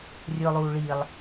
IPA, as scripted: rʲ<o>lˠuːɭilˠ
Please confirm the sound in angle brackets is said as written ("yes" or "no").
no